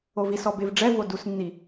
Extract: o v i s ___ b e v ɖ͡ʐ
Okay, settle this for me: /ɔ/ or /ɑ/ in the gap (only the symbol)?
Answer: ɔ